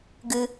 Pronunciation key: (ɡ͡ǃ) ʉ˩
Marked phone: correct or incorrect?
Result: incorrect